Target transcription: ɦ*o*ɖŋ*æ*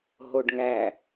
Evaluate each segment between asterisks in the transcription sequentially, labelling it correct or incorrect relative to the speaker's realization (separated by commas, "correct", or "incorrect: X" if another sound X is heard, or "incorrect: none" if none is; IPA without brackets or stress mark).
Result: correct, correct